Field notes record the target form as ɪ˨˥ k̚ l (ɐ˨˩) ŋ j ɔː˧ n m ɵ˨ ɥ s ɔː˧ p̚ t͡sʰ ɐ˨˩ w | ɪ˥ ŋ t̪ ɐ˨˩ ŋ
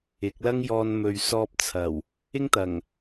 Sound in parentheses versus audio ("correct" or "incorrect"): incorrect